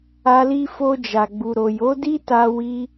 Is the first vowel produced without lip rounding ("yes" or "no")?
yes